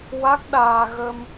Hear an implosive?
yes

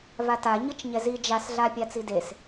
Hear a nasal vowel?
no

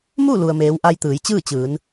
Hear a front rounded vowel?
no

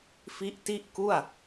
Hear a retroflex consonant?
no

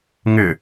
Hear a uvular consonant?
no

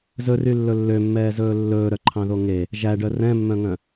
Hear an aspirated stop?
yes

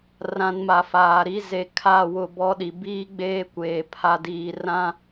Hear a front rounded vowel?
no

